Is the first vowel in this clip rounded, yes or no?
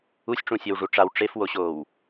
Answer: yes